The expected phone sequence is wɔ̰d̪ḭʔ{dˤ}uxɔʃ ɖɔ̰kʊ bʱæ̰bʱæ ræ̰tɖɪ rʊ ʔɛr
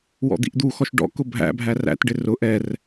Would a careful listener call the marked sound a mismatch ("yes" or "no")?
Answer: yes